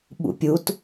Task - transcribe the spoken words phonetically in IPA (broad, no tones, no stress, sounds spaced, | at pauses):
ɓ ṵ pʲ u t